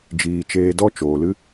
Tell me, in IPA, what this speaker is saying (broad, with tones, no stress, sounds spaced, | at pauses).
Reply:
d͡ʒ iː˨ t͡ʃ eː˨ d ɔ˧ t͡ʃ oː˨ l ɨ˦